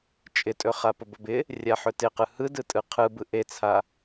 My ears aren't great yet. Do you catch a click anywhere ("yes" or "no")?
no